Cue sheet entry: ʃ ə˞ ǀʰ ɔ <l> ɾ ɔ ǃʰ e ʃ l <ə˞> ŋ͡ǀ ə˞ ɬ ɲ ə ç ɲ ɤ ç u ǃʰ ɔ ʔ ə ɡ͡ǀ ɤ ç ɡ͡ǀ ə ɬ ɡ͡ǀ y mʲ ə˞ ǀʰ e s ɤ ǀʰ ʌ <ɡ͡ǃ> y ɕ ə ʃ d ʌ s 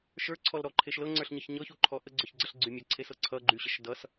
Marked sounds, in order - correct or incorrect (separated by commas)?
correct, incorrect, correct